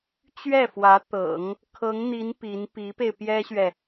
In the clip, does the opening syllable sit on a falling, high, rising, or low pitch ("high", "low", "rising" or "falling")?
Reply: falling